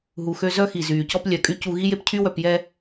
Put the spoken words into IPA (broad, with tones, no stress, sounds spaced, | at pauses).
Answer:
ɦ u˨ x ø˧ z œ˧ x i˨ z yː˨ c ɔ˦ p lʲ œ˨ kʼ y˧ c u˧ ɣ i˦ j e˦ p cʰ y˦ w œ˧ p j ɛ˦